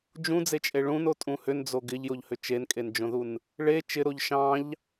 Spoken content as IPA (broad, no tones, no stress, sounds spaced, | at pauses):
d͡ʒ ũ d͡z e t͡ʃʼ e ɭ ũ n o tʼ ũ h ʏ n d͡z o ɡ ɪ ʎ j o ʎ h ʏ t͡ʃ e n kʼ e n d͡ʒ õ ð u n | ɭ e t͡ʃ ɪ ɾ o ʎ ʃ ɑ̃ ʎ